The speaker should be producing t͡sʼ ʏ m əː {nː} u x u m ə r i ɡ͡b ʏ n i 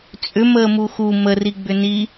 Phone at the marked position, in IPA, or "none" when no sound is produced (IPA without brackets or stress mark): m